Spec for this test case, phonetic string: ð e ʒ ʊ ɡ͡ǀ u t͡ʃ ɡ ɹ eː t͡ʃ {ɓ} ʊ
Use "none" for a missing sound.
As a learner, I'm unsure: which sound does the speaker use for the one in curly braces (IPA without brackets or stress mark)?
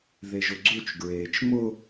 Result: m